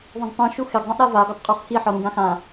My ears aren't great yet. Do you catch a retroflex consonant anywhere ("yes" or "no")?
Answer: no